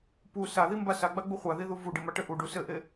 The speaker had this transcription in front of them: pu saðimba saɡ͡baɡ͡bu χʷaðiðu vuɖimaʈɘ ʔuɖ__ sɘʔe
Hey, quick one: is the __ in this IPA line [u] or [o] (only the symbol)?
u